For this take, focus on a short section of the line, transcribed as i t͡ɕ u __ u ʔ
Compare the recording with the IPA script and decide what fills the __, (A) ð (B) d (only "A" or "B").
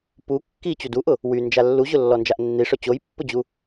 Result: B